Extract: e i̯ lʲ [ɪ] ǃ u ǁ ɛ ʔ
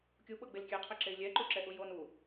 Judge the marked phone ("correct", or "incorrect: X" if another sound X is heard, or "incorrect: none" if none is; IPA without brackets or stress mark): incorrect: ɛ